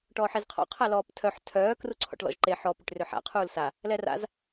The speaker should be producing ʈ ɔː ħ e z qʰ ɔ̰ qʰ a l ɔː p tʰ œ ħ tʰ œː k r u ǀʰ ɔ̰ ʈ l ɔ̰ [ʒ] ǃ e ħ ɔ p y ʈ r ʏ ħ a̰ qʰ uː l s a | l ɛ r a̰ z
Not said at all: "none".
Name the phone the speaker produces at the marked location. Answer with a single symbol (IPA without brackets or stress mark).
ʒ